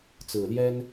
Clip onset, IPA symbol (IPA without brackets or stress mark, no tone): t͡s